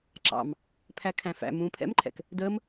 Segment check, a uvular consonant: absent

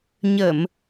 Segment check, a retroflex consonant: absent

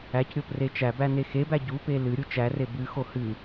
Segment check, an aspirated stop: absent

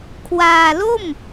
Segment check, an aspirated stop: present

